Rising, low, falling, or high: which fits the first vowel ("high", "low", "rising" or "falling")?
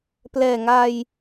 low